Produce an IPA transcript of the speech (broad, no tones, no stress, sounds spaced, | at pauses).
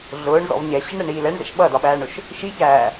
ɮ ʊː ɳ z ɔ̰ v ɲ ɛ ɕ ɪ ɳ ɾ ɛ ɳ iː l ɛ ɳ z ɛ̰ ʃ ɓ ʌ d ɒ ɓ æː ɳ ʊ ʃ | ʃ i ç æː